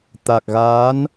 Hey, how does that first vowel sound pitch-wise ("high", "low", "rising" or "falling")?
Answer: low